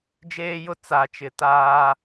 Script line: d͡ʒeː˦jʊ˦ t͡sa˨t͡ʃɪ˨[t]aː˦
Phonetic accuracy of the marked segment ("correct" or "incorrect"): correct